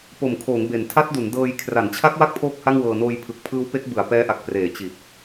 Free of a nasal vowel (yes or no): yes